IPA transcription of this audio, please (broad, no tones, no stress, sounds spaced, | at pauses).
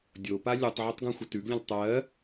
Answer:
dʲ o p a lʲ u tˤ ʕ ə tˤ ɡ õ xʷ ə t ʉ ɡ lʲ ə̃ l tˤ ɜ